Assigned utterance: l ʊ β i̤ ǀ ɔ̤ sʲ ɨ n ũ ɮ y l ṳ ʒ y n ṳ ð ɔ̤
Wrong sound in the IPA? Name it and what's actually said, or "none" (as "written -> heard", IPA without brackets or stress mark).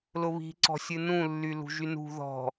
ɮ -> lː